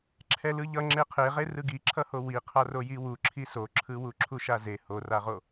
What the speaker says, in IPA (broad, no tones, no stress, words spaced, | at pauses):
ǁʰɛlɯʎʌ ŋ͡ǁeqʰeʁe rɯɡiǁʰʌho wi qʰarojiwu ǁʰisoǁʰɯwu ǁʰuʃaze horaʁo